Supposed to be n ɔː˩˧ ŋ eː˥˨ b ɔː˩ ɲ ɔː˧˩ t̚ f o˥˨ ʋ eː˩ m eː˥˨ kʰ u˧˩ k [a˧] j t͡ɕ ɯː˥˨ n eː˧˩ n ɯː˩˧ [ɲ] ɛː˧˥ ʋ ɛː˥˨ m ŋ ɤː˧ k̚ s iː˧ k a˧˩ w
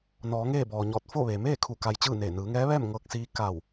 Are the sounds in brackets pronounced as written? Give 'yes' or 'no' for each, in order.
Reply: yes, no

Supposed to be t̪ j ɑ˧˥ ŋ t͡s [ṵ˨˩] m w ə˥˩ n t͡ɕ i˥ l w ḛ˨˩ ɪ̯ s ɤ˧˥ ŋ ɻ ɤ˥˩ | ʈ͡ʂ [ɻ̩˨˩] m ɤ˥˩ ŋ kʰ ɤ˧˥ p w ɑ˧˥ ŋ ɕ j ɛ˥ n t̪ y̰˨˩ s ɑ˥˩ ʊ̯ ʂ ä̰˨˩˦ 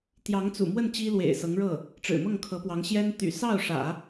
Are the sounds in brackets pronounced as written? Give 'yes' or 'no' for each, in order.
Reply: yes, yes

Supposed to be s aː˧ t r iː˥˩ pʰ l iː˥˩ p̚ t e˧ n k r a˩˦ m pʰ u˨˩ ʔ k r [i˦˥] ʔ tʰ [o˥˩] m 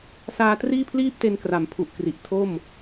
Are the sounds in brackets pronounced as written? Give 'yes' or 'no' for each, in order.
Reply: no, yes

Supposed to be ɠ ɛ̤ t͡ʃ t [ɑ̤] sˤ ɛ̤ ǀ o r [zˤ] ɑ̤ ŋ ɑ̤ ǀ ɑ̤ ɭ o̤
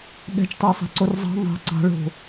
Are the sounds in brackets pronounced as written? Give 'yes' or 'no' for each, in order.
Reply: no, yes

